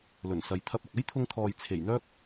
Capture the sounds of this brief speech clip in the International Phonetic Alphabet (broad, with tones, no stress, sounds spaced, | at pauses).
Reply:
l ɵ˨˩ n s ɐ˨ j t̪ʰ ɐ˧ p̚ ɐ˨ k̚ ɐ˥ j t̪ʰ ʊ˧ ŋ t̪ʰ ɔː˨ j t͡sʰ e˨˩ j n̪ œː˥ k̚